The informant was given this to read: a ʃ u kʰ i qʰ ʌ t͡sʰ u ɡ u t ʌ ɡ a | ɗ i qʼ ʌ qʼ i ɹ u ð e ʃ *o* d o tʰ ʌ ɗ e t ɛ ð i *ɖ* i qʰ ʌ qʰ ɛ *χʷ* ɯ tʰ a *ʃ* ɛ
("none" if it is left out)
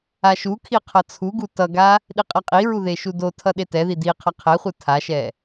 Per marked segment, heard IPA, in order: u, d, χʷ, ʃ

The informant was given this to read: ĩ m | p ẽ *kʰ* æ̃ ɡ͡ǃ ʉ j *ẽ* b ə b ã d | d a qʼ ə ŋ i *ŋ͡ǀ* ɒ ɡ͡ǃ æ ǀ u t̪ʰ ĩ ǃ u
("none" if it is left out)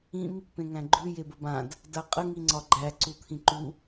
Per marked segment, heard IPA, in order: ŋ, e, ŋ͡ǀ

